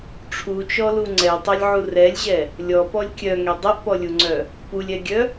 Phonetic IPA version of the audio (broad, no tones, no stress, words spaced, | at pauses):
ʈ͡ʂʰut͡ʃɔlu ŋ͡ǀɛtˤœlʲʕu rɛlʲʑɛ | lʲɔpɔlʲ kʲœŋɛ dˤɛʔpɔlʲuŋ͡ǀœ | pulʲɛɡʲœ